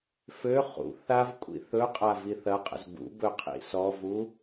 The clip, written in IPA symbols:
f ø χ ṵ θ a v kʷʼ ḭ θ ɵ qʼ a v i θ ɐ qʼ ə̰ z b ṵ b ɵ qʰ ḭ s ɔ v u

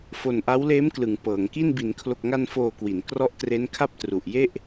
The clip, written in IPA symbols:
f o˨˩ n ʔ a˦˥ w l eː˦˥ m k l ɯ˩˦ ŋ p ɤː˩˦ ŋ k i˥˩ n b i˩˦ n kʰ l o˨˩ k̚ ŋ a˧ n f oː˨˩ k w i˩˦ n k r ɔ˦˥ ʔ t r e˦˥ n kʰ a˥˩ p̚ t r u˨˩ ʔ j e˥˩ ʔ

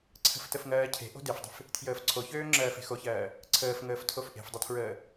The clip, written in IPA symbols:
ǀʰ ə̤ f t ə f ŋ ɜː cʰ e̤ ʔ o̤ d e f dˤ ə̤ f | tʰ j əː f ǀʰ o ç øː ŋ͡ǁ ɜː f e̤ x o ç ɜː | ǀʰ əː f ŋ əː f tʰ o f ʔ e̤ f dˤ ə tʰ ɹ əː

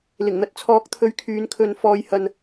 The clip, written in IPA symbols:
l ɪ˨˩ ŋ n̪ ɐ˨ t̚ t͡sʰ ɔː˨˥ k̚ t̪ʰ ɵ˧ ɥ kʰ yː˨˧ n kʰ ɵ˧ n f ɔː˧ j h ɐ˧ n

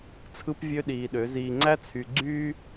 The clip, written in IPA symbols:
t͡sʰ ɯ˦ p vʲ ø˦ ɗ iː˨ ɗ ø˨˦ z iː˨ ŋ͡ǀ æ˦ t͡sʰ y˨ ɡ͡ǀ yː˦

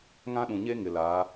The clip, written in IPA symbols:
ŋ ã˦ ɗ ũ˨ ɲ e˦ ŋ ɪ˨ l a˨˦

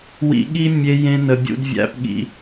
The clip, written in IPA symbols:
w ḭ˧ ɠ i˦ mʲ e˧ j ẽ˧ n ə˨ bʲ ṵ˧ d vʲ æ̰˧ p ɠ ḭ˧

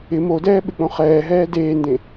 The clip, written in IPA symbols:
ɪ m o d ɛː ɓ ɪ k͡p õ χ ɛː ɦ ɛː d eː n d ẽ

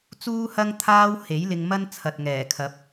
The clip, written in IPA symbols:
t͡s uː˥ h ɐ˥ ŋ t̪ʰ aː˥ w h e˨˥ j l ɪ˧ ŋ m ɐ˥ n t͡sʰ ɐ˨ t̚ ŋ ɛː˨˩ kʰ ɐ˨˥ p̚

